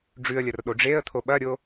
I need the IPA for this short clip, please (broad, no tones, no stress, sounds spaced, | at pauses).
ɖ͡ʐ ʉ ə̯ lʲ ɐ r ɗ o ɖ͡ʐ e ə̯ t̪ʰ o ɓ ɐ ɾʲ o